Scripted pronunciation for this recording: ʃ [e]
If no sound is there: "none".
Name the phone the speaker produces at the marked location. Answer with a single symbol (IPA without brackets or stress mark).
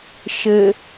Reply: ɘ